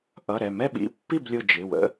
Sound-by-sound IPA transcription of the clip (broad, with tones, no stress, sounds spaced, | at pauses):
ʔ ʌ˩˧˩ ɾ ɛ˧˩ m ɛ˥˨ ɓ ḭ˧˩ pː i˥˨ b lʲ ʊ˧˩ d͡ʒ ɪ˩˧˩ w ə̰˦